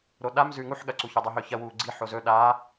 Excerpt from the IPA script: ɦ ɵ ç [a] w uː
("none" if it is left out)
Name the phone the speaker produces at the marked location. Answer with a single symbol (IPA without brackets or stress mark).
ɐ